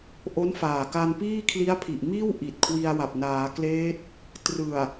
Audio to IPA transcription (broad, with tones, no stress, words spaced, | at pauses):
ʔo˦˥nfaː˨˩ka˧npiː˥˩ kʰli˦˥a̯pʰi˨˩ʔmiː˥˩w ʔi˨˩t̚kʰwi˧a̯wa˨˩p̚ naː˩˦kleː˦˥t̚ | trɯ˨˩a̯